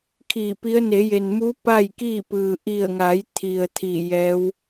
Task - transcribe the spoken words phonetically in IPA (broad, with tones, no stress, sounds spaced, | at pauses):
kʰ i˧˩ p i˧˥ ə̯ n e˩˧ j e˩ n m u˧˥ p a˥˨ j k iː˥˨ p ɯː˩ ʔ i˧˩ ə̯ ŋ a˩˧ j t̪ʰ i˩ ə̯ t̪ʰ i˧˩ j ɛː˧˥ w